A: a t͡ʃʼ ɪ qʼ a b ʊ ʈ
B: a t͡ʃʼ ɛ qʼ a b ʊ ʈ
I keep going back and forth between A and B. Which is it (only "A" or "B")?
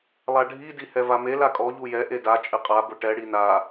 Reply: A